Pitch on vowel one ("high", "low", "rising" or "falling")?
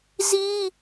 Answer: high